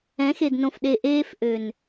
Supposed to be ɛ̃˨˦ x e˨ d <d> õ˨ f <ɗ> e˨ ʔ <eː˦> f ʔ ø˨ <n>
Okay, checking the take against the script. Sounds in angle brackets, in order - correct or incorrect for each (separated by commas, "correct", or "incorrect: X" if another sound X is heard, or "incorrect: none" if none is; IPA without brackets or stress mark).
incorrect: n, correct, correct, correct